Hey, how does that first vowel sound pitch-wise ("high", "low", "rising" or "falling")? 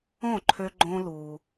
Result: falling